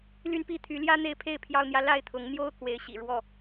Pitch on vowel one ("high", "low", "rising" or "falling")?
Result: high